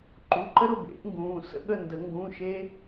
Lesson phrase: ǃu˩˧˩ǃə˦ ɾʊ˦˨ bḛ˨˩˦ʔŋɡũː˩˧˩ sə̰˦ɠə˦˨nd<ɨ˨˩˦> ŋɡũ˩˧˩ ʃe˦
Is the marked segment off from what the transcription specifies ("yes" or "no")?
yes